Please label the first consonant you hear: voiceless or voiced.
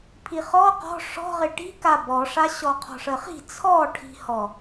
voiceless